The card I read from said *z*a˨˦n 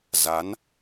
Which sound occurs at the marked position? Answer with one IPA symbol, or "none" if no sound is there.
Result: z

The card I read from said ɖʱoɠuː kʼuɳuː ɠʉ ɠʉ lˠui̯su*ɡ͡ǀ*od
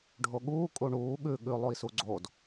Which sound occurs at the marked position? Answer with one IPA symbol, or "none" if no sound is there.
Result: ɡ͡ǀ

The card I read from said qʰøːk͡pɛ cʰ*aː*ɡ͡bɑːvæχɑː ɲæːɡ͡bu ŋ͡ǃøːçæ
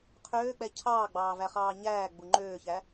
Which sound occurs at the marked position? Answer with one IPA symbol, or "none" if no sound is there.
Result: ɑː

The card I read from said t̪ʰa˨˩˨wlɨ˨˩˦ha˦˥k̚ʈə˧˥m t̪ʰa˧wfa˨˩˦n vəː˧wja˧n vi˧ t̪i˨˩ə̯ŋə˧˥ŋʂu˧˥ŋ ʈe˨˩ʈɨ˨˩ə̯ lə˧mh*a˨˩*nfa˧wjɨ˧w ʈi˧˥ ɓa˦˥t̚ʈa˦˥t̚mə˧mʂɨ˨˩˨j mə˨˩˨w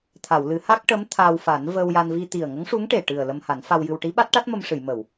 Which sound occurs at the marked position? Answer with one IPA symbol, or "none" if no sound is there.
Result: a˨˩˦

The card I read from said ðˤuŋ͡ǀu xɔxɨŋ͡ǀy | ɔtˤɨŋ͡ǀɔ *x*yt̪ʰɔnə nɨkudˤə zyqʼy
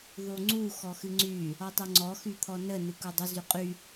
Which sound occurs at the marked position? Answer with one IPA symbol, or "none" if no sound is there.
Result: x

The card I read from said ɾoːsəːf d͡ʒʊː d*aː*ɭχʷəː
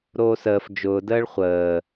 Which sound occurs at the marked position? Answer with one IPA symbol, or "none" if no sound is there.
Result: əː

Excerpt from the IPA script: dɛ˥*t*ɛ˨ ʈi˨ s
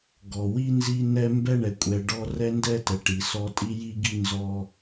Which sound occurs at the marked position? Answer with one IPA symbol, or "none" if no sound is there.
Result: t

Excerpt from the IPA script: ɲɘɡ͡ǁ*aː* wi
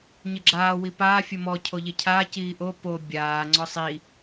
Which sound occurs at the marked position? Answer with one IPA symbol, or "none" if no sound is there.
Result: aː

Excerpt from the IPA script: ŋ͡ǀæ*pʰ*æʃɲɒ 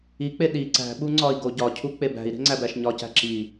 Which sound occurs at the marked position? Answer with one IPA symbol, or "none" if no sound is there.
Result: b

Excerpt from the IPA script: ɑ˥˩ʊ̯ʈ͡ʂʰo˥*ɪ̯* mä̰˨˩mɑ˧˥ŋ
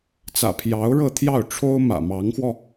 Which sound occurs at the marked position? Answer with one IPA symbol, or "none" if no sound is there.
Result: ʊ̯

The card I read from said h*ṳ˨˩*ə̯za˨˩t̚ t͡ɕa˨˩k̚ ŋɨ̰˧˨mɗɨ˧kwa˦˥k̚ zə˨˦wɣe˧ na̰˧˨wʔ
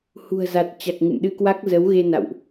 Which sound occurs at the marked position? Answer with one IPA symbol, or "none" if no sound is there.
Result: ṳ˨˩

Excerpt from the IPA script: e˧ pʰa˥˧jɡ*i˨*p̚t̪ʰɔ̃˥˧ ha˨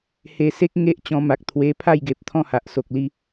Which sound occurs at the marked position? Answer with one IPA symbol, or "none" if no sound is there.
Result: e˨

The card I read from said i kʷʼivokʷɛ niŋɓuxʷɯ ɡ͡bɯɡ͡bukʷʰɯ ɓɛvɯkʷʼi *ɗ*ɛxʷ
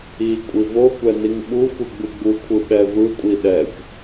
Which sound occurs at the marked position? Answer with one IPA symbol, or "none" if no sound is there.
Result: ɗ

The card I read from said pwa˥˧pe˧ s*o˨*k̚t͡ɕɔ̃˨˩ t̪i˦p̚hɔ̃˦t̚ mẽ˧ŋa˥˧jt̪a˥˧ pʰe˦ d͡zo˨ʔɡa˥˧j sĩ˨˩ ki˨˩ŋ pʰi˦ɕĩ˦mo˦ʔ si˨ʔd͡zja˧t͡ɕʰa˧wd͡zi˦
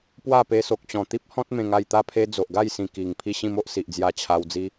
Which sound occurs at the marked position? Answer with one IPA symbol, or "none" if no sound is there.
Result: o˨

